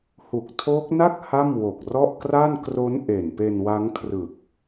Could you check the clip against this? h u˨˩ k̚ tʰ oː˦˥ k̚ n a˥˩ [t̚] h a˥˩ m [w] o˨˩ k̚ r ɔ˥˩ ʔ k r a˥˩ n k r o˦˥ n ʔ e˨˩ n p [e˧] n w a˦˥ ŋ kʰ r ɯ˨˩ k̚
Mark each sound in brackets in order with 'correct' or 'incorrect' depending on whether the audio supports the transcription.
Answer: incorrect: k̚, correct, correct

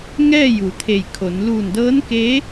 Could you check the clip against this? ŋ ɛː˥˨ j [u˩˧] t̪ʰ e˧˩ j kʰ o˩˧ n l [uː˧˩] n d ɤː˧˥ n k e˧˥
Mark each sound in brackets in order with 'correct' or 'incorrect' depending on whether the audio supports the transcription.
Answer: correct, correct

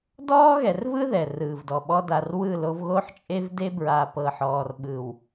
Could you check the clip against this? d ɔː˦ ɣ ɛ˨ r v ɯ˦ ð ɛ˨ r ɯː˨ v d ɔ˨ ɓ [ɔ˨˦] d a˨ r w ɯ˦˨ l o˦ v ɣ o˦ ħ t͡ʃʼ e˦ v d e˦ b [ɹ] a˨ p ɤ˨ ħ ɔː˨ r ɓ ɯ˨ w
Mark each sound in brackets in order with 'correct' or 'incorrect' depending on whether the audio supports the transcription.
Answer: incorrect: ɔ˦, correct

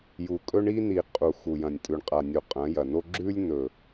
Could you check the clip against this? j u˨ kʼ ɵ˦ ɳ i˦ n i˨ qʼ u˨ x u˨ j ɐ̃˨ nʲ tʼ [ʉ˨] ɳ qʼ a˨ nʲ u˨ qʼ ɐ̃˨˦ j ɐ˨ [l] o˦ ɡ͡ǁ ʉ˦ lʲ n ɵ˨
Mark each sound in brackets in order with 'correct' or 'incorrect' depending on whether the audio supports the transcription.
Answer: correct, incorrect: n

